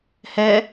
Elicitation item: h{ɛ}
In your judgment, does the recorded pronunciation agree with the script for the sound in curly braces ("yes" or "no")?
yes